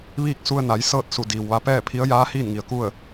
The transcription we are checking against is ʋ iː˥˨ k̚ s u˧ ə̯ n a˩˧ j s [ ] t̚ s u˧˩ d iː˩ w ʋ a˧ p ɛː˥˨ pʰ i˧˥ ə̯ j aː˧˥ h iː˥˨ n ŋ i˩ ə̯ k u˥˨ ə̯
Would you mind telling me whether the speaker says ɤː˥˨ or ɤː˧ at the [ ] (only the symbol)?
ɤː˥˨